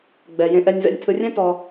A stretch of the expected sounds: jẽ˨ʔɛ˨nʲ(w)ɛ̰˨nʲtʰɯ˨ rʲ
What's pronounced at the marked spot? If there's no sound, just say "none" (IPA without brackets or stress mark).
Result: v